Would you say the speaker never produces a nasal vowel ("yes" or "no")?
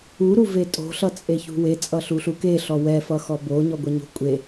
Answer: yes